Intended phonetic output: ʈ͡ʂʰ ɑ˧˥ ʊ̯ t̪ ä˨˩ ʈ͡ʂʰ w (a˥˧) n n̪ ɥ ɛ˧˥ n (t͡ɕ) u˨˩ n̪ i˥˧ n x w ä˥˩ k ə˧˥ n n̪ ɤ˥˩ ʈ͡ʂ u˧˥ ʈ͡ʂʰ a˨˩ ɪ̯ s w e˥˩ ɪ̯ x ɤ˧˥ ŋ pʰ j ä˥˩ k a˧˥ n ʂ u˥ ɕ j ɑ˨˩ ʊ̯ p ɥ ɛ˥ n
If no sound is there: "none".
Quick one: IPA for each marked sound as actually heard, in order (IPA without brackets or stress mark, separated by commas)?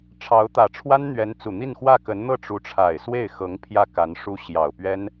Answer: a˥, t͡s